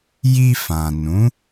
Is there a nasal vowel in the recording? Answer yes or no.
yes